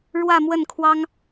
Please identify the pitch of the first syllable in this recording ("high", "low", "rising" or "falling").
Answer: falling